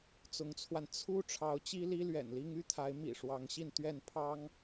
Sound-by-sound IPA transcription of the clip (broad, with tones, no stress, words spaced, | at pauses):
t͡sʊ˧˥ŋt͡sʰwa˧n t͡sʰu˥ ʈ͡ʂʰɑ˧˥ʊ̯t͡ɕi˥li˥ lɥɛ̰˨˩nli˥ŋy˥t̪ʰa˧˥ɪ̯ mḭ˨˩ʂwɑ˧˥ŋɕi˥˧n t̪ɥɛ˥˩npʰɑ˥ŋ